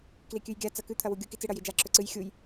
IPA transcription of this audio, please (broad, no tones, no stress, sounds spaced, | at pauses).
k l i kʲ ʉ j ɡʲ a t͡s ɐ k ʉ t̪ʰ ɐ w u ɡʲ u k i t͡s ɨ ɽ ɐ j i d͡ʒ a ǁ ɵ ǀ ɨ j xʲ u j